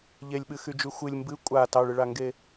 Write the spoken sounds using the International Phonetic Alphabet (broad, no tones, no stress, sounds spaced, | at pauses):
ʎ e lʲ ɓ ɨ x y d͡ʒ y xʷ ɨ lʲ m b ɨ kʷʼ a t ɑ ɭ ɨ ɭ a ŋ ɡ e